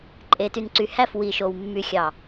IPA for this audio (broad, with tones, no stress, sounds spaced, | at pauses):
ǃʼ e˨ t y˨ n ǀ y˨ h æ˦˨ f w i˨ ʃ o˨ w mː y˨ xʲ ɑ˨